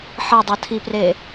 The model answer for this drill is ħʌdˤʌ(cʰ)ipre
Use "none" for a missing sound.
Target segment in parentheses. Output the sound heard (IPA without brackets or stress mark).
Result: tʰ